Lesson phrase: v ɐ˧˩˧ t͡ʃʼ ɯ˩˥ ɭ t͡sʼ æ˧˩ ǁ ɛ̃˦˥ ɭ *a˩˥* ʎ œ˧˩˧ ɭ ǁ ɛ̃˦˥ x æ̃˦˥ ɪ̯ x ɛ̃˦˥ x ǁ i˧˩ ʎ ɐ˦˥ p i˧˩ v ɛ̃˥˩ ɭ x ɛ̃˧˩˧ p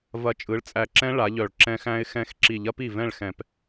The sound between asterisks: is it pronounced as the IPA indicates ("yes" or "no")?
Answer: yes